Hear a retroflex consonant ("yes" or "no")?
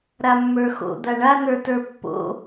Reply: yes